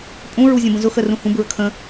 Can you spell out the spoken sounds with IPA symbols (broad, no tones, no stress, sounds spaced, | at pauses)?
pʼ ũ ɹ u zʲ ə̃ b ə̃ z ʊ x ə r ũ h ũ b ɹ ə kʰ ə̃